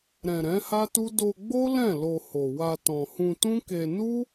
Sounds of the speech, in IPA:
ɾ ɛ̃˨ ɾ ɛ̃˨˦ h a˦ t u˦ d o˧ ɡ͡b o˦ l ɛ̃˦˨ l o˧ h o˨ w a˧ t ɔ̃˨ h ũ˧ t ũ˦ k e˧ n u˦

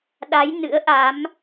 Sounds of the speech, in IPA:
ɗ a˨˦ j n ɨ̰˧˥ ə̯ ʔ a˨˦ m

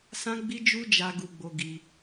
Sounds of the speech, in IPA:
s ã˦ ɡ͡b i˦ d͡ʒ u˦ d͡ʒ a˧ ɡ u˧ ɡ͡b o˧ ɡ i˧

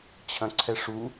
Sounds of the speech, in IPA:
t͡ɕʰ ɐ̃ ǀʰ ɛ ʂ u

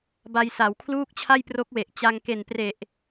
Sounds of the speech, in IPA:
b a˧ j s a˩˦ w kʰ l uː˥˩ k̚ t͡ɕʰ a˥˩ j p r o˦˥ k̚ w e˨˩ ʔ t͡ɕ a˧ ŋ k e˨˩ n p r e˨˩ ʔ

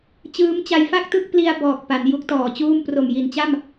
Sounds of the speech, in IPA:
t͡ɕ ɯː˦˥ m t͡ɕ a˧ j f a˥˩ k̚ t ɯ˥˩ k̚ p l i˧ a̯ b ɔː˨˩ k̚ p a˩˦ n j u˦˥ k̚ t ɔː˨˩ t͡ɕ uː˥˩ m p r o˨˩ m j i˨˩ n t͡ɕ a˥˩ m

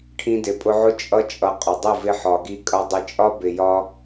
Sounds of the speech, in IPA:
ʈʰ ĩ˧ d ɪ˨ pʼ ʊ˧ ʕ ʊ˦ t͡ʃʼ ʌ˧ t͡ʃʼ ʌ˨ qʼ ʊ˨ dˤ ɪ˦˨ v ɪ˧ ħ ɒ˨ ɡ i˧ kʼ ʌ˧ dˤ ɪ˧ t͡ʃʼ ɒ˦ b ɪ˨ j ɒ˧

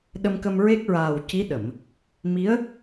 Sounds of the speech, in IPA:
ɗ ə˧ m k ə˧ m ɹ e˦˥ k̚ ɹ aː˨˩ w c i˧˥ ɗ ə˨˩˨ m | m i˧˥ ə̯

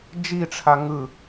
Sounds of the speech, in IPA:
d͡ʒ i ʈ͡ʂʰ a ŋ ɯ

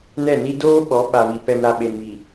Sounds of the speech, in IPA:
n ɛ˦˨ n i˦ d oː˦ ɓ ɔ˨˦ ɓ a˨ β i˨ p ɛ˨ m ɾ a˨ ɓ e˨ n β i˨

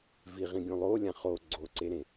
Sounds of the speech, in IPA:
v i ʁ ĩ ɡʲ õ lˠ o lʲ ã χ o ɡ͡ǀ o ǀ e ɾ ẽ

